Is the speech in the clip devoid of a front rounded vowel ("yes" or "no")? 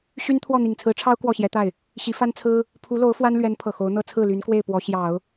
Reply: no